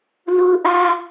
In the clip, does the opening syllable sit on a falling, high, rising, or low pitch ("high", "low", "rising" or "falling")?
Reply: high